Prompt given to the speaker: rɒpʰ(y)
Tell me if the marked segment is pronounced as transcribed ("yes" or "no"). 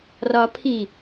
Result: no